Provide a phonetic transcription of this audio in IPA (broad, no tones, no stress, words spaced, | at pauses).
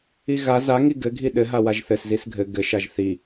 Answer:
iɣa zaŋi ɡɘɡʱi ɗɘɦa waʒθɘs zisɡʱɘ ɡɘʃaʒ θi